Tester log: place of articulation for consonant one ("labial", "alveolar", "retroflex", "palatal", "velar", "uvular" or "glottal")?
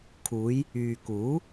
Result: velar